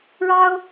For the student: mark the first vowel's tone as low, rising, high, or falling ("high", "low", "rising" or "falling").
high